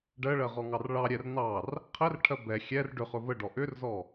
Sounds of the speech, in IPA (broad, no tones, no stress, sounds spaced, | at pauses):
ɖ ɜ ɭ ɜ ʁ ɔ ŋ ɑ r ɭ ɑ ɾʲ ɛ r n ɑ r | qʰ ɛ r ʈʰ ɜ b ɛ xʲ ɛ r ɖ ʏ χ ɵ v ə ɖ ɔ ʔ ʏ r z ɔ